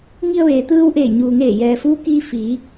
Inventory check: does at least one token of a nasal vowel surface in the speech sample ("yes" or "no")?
no